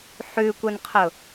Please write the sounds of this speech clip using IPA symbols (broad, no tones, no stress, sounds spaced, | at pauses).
ħ ʉ kʷ ə n qʰ ʊ